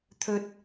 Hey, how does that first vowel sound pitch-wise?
high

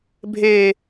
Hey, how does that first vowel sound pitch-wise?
high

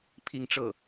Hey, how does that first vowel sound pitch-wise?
falling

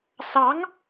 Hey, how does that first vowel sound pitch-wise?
rising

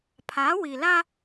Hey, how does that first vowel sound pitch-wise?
rising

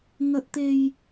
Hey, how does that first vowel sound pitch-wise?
high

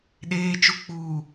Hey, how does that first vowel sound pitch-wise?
low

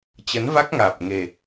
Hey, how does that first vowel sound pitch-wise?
rising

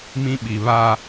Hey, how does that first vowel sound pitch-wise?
high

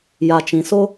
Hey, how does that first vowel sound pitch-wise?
low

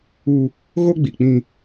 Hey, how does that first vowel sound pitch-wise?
high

